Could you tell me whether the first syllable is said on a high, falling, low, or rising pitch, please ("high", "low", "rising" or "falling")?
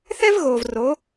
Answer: high